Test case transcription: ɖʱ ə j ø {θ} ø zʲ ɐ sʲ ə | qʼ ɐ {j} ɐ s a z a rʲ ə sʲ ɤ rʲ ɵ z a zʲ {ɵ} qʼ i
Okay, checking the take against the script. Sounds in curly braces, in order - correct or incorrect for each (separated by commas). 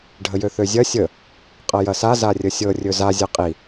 correct, correct, incorrect